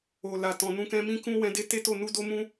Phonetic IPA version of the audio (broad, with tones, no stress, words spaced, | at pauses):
o˨la˨ tɔ̃˨nũ˧ kɛ̃˧mĩ˦ kũ˧ wɛ̃˧de˦te˦to˦˨ nu˧do˧mũ˧